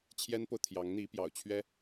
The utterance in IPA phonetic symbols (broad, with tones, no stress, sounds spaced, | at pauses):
t͡ɕʰ j ɛ˥ n p o˨ ʊ̯ t̪ʰ j ɑ˧˥ ŋ n̪ i˧˥ p j ɑ̰˨˩ ʊ̯ t͡ɕʰ ɥ ɛ˥